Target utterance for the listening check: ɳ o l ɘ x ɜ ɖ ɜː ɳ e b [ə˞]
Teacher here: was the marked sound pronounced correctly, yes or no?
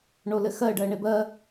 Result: no